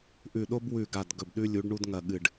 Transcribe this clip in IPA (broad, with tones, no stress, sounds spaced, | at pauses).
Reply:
ʔ ʉ˧˩ ɗ o˥ b w ʉ˧˩ ɡ a˧˩ d ɡ ɵ˧˩ b ɗ ʉ˥ lʲ u˨˥ ɖ ɳ u˥ d ŋ ɐ˧˩ ɠ ɨ˧˩ ɖ